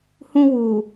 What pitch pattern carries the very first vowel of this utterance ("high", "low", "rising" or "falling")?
high